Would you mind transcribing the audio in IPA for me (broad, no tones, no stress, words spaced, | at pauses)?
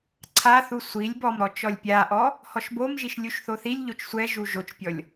ǀʰaθu sʷilʲ bɔmɾɔ t͡ʃɔlʲpʲaʔɔ | hɔʃbomʒiʃ lʲuʃθoθilʲʎot͡ʃ sʷɛʒu ʒot͡ʃpʲɔlʲ